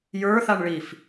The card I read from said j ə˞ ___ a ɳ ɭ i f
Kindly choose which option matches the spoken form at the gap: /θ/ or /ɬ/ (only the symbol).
θ